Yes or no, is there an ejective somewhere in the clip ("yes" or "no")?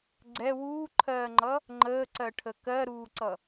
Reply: no